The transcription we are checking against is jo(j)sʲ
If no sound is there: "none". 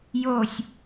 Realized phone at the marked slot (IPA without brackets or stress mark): none